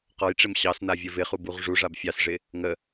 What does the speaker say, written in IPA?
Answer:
q ɔ j ʈ͡ʂ ɪ m ɕ ɑ s n a vʲ ə v ɪ χ u b u ʁ ʐ u ʐ a b fʲ ɑ s ʐ ɪ | ŋ ə

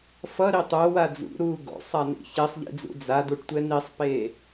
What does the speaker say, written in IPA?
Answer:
f ʌ ɾ i tˤ o w a d͡z ṵ ɾ uː ɡ o̰ sˤ a n ḭ ç e sˤ ʎ ḭ d͡z ṵ d͡z a d u ʈ tʷ ɛ n i sˤ p eː

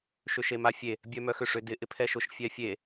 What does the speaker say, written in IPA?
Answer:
ʃ ʏ ʃ e m a fʲ e | bʲ œ m œ x ʏ ʂ ʏ d ɪ ʔ ɪ pʰ ɛ ʃ ʊ ʃ fʲ ɛ fʲ e

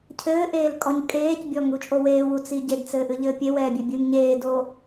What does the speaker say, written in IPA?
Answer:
cʰ ɘː ʔ eː l kʼ ɔ ɲ kʼ eː c bʲ ɔ ŋ u t͡ʃʼ o w eː w u t͡s i ɟ e d t͡s ɘː ʔ ɨ ʎ ɘː pʲ e w ɛː bʲ e bʲ ɨː ŋ ɲ eː d oː

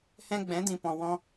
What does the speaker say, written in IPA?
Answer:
h ɛ̃˧ ɡ͡b ɛ̃˨˦ d ĩ˨ p ɔ̃˨ w ɔ̃˦

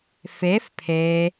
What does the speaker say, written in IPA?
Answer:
f e f pʰ e

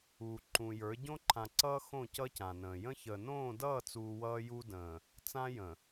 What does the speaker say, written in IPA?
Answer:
uː˨ ǃ ũ˨ j ə˞˨˦ ɟ õ˦ ǃʰ ã˨ ǀ ʌː˦ x õ˦˨ c ʌ˦ c ã˨ n ə̃ː˨ j ə̃˦ ç ə˨ n õː˦˨ d ʌː˦˨ t͡s uː˨ w ʌː˦ j u˦ d ə̃ː˨ | t͡s ã˦ j ə̃˨

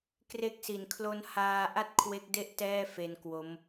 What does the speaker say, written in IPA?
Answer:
k r e˦˥ k̚ s i˩˦ n kʰ l o˦˥ n h aː˧ ʔ a˥˩ t̚ kʰ w e˦˥ k̚ d e˥˩ ʔ t ɛː˥˩ f e˧ n k w o˦˥ m

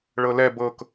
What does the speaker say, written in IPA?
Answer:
ɭ ɤ l ɛ b ɤ k

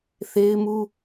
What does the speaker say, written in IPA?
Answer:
θ e˦ ɪ̯ m u˦

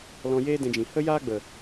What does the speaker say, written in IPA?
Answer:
l ɔ̃˧ j eː˦ d ɛ̃˧ d͡ʒ ĩ˨ h ə˦ j aː˦ ɡ͡b ə˨

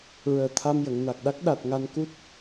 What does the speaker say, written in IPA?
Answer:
ɹ əː˨˩ t̪ʰ a˧ m j ə˨˩˨ ŋ n a˨˩ k̚ ɗ a˦˥ k̚ ɗ a˨˩ t̚ ŋ a˧ n k u˦˥ t̚

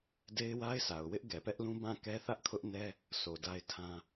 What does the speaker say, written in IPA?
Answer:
d e˦ ɪ̯ w a˦ ɪ̯ sʰ a˨ ʊ̯ w ɪ˦ ʔ ɡ ɛ˨ p ɛ˦ ʔ l ũ˦ b ã˦˨ k ɛ˦ θ ä˦ ʔ kʰ ʊ˦ ʔ n ɛ˦ | sʰ o˨ d a˦ ɪ̯ tʰ ã˦

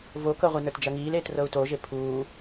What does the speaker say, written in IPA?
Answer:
v o k ɤ ʁʷ i n ə˞ t d͡ʒ ɐ ŋ iː l eː t r ɤ u̯ t o ʒ e pʰ uː

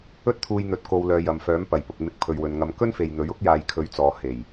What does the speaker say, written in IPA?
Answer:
ɵ˥ t̚ t̪ʰ uː˧ j n̪ ɵ˨˥ t̚ k o˨ w l œː˨˧ j ɐ˨ m f œː˨˥ m p ɐ˨˩ j p ʊ˨ k̚ m ɪ˧ k̚ pʰ ɵ˨ ɥ w ɵ˨ n ŋ ɐ˨˧ m k ɵ˥ n f e˨ j n̪ ɵ˨˥ ɥ ʊ˥ k̚ j aː˨ j kʰ ɵ˨˥ ɥ t͡s ɔː˨ h e˨˩ j

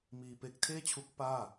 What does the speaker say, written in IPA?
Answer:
m iː˧ p e˦˥ k̚ tʰ eː˥˩ t͡ɕʰ u˦˥ k̚ p aː˥˩

